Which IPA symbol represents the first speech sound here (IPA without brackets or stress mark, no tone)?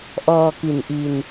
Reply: ʔ